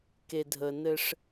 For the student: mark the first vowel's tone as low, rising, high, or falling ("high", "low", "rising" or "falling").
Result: low